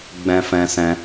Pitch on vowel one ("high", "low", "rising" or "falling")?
high